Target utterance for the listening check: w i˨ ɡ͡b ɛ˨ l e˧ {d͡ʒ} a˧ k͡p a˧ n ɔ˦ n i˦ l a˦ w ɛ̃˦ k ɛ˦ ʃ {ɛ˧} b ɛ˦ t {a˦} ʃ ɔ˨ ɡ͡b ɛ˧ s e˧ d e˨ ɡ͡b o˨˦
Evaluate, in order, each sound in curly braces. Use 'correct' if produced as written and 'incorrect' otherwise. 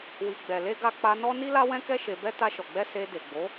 incorrect, incorrect, incorrect

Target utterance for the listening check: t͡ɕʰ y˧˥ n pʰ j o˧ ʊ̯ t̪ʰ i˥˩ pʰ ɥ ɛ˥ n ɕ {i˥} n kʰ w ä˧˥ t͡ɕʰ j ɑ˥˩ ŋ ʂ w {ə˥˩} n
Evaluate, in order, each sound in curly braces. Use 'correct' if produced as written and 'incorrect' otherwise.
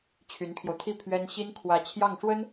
correct, incorrect

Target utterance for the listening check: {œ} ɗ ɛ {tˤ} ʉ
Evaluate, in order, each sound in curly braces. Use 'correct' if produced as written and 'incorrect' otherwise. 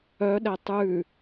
correct, correct

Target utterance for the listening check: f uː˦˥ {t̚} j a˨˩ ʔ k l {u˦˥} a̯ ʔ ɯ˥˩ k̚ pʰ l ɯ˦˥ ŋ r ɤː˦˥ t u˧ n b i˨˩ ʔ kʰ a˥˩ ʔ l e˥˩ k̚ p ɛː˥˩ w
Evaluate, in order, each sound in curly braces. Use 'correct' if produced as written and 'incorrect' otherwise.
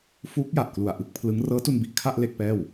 incorrect, incorrect

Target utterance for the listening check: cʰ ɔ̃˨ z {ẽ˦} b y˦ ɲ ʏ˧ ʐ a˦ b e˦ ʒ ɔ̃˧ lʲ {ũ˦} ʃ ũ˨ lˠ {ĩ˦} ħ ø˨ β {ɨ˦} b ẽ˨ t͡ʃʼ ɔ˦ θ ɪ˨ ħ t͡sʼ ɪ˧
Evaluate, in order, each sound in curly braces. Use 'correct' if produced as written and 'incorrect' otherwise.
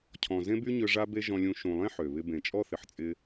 correct, incorrect, incorrect, incorrect

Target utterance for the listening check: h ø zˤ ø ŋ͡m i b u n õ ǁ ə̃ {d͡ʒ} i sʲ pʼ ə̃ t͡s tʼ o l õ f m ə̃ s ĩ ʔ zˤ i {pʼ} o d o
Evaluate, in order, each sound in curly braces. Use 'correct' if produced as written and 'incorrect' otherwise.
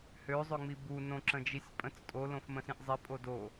correct, correct

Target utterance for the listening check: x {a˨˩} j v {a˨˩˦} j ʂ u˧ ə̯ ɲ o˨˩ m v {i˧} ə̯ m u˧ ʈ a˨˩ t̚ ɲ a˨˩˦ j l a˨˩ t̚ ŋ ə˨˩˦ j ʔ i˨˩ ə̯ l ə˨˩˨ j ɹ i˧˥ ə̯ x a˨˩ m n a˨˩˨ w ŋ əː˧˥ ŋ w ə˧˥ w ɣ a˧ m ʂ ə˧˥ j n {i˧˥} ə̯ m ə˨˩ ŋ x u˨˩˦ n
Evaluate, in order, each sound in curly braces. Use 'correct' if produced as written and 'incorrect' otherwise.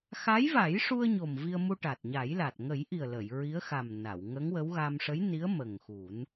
incorrect, correct, correct, correct

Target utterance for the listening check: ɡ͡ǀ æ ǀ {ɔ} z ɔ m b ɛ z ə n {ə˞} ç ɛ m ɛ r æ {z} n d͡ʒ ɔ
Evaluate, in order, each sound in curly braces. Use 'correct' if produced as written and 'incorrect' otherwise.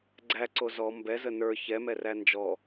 incorrect, correct, incorrect

